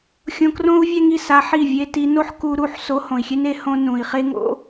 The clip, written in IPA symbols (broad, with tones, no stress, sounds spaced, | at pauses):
xʲ õ˧ k r õ˦ u̯ vʲ ɛ˦ ŋ i˨ s a˧ ħ i˦˨ vʲ e˦ t i˧ n o˦ ħ k u˧ ɾ u˦˨ ħ s o˧ h õ˨ i̯ xʲ e˦ n e˧ h õ˦ n ũ˨ i̯ χ e˦ ŋ o̰˦